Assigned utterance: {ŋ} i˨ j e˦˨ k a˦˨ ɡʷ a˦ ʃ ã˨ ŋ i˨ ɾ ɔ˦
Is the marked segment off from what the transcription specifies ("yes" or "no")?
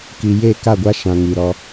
yes